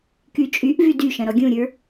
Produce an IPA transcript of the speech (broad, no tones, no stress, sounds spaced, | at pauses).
k y t͡ʃʼ y ʔ v y d y ʃ ɐ̃ ɾ ɔ ɡʲ ũ ɾʲ ə˞